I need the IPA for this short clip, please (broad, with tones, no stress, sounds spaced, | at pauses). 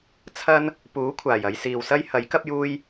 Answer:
t͡sʰ ɐ˥ n | p uː˨˥ kʷʰ aː˨˩ j ɐ˨˧ j s iː˨ w s ɐ˥ j h ɐ˨˥ j k ɐ˥ p̚ j uː˥ j